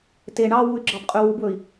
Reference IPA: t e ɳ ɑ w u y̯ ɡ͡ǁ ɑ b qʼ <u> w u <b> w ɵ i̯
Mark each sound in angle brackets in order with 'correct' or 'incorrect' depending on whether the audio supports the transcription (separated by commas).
incorrect, correct